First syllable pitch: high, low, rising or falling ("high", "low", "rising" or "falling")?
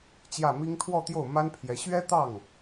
falling